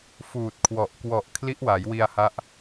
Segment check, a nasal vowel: absent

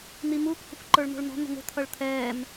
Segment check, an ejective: absent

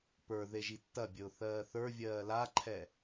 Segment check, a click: present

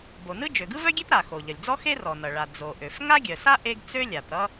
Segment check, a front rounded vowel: present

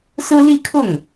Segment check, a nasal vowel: absent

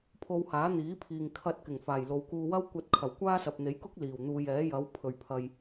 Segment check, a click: absent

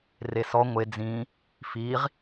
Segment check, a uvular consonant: present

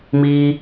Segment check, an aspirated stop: absent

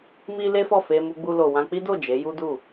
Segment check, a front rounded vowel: absent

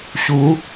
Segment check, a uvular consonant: absent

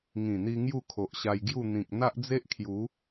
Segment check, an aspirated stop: present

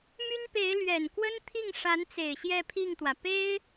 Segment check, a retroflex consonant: present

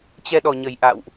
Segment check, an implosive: present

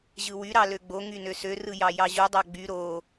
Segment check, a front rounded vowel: present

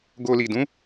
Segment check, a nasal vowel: present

